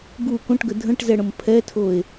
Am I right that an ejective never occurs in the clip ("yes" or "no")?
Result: yes